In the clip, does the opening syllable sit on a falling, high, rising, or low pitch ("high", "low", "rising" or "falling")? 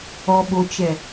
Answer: low